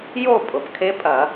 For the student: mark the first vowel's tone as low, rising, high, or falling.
falling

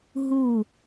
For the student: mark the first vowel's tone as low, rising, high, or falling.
falling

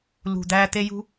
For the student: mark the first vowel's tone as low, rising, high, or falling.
low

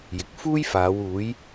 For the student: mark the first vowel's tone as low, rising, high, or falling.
low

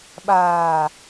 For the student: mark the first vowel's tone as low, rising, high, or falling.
low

